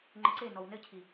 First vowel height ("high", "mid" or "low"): mid